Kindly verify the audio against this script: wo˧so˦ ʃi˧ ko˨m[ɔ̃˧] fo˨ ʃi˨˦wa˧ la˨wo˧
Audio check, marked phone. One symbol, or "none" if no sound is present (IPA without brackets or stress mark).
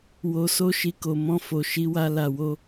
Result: ɔ̃˧